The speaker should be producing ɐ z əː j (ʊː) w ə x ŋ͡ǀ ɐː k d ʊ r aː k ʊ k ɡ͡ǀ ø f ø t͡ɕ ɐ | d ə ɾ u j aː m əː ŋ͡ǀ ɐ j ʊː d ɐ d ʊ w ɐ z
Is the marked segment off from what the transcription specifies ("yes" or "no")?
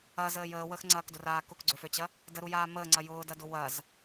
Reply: yes